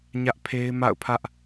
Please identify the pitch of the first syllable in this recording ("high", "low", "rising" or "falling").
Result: high